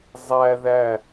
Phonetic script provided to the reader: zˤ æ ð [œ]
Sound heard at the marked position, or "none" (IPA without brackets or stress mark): æ